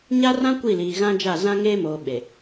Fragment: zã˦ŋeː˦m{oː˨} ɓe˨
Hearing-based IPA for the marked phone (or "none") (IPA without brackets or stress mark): oː˨